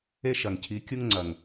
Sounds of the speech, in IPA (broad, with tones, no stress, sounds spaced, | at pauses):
e˦ ʃ ɐ˨ ŋ cʰ i˨˦ kʲ u˦ ŋ ŋ͡ǀ ɐ˨ ŋ